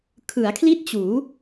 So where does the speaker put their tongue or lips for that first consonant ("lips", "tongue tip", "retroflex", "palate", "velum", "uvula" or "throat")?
velum